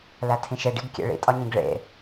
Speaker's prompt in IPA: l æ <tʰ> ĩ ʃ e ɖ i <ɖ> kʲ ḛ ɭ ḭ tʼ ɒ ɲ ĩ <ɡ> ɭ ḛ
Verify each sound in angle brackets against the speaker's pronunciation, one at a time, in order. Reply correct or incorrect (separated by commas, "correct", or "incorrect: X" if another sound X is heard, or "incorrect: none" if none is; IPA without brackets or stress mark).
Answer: correct, incorrect: ɡ, correct